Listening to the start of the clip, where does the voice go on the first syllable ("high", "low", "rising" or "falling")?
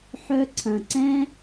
high